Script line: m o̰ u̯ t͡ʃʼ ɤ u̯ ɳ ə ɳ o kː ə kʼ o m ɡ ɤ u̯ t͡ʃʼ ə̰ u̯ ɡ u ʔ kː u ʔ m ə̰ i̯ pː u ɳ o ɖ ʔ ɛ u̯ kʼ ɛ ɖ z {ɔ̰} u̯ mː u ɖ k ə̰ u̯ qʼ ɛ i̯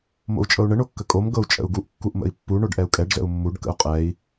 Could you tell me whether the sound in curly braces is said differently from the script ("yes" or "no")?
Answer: yes